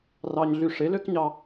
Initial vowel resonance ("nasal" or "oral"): oral